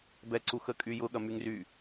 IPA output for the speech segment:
b ɛ ǀ u x ə kʼ y j ʊ ɠ ɐ m y ŋ r y

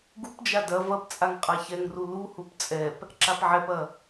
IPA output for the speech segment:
ɡ u p d͡ʒ a d ɐ v ɐ p t͡sʼ a ŋ qʼ a ç ɛ ŋ r u l u h u p t͡sʼ ɛ p | ǁ a p ʕ ɛ p ɐ

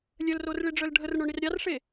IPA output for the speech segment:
lʲ œ l r o r ɭ i ɖ͡ʐ œ l ɖʱ ə r ɳ o ɳ i r ɾʲ ɑ r ʂ e

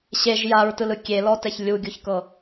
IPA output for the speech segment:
ɕ e ʒ j a ɹ t ɯ l ɯ kʲ e l ɔ t ɛ ç lʲ u ɡʲ u ç k ɤ

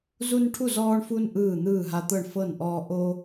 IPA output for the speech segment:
z u˦ n ʈʰ u˥˨ z ɔː˦ ɳ f u˦ n ʔ ɯː˥˨ n̪ ɯː˥˨ ɦ a˦ t̪ ɤ˥˨ ɳ f ɤ˥˨ n ʔ ɔː˦ ʔ o˦

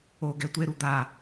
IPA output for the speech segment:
o ɡ ɛ tʷ e ɾ u d̪ a

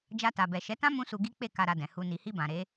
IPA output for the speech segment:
d͡ʒ a˧ t a˨ b ɛ˨ ʃ ɛ˨˦ t ã˦ m ũ˦ s u˧ ɡ i˦ k͡p e˦˨ k a˧ ɾ a˧ d ɛ̃˨ h u˧ n i˨ h i˧ b ã˨ ɾ e˨˦

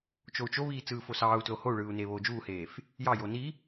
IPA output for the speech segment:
t͡ʃ o u̯ t͡ʃ o β iː t͡s ɯː f o s ɑː u̯ t l o h o u̯ ɭ ɯː u̯ n eː β oː d͡ʒ uː h eː f | j ɑ j o n i

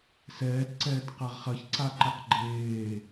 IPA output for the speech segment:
s ɛː t ǀ ɛː t q ɐ ʁ χ ɐ ç ǀ a ǃ ɛ q ɡ͡ǃ eː

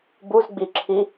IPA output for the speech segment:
b u z ɡ͡b i ǁʰ i

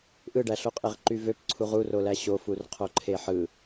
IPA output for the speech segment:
ʔ ɯ ɖ æ ɬ o qʼ e ʁ ǃ y v ø p ǀʰ u ʁ u r o l æ ɕ o f u r qʰ o ǃʰ e ħ ɯ

